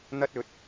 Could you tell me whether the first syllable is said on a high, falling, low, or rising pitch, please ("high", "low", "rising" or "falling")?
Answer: high